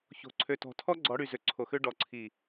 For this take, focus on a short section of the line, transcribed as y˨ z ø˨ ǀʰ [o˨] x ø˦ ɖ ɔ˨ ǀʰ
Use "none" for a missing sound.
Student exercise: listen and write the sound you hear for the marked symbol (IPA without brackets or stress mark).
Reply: o˨